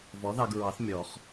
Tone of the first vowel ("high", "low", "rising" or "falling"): rising